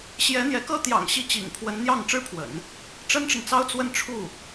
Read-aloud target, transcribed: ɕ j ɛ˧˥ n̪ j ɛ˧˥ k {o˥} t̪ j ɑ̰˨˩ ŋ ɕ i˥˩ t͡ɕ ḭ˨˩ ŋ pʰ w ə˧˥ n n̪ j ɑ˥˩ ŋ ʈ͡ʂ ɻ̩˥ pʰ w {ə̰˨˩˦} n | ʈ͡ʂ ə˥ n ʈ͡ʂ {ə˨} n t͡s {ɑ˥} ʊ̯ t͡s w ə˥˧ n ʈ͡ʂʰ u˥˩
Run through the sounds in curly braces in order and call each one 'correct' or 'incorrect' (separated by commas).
incorrect, correct, correct, correct